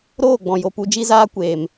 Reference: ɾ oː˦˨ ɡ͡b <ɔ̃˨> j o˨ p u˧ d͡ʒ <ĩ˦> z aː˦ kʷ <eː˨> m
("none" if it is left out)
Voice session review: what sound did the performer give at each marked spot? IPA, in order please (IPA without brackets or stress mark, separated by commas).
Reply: ɔ̃˨, i˦, eː˨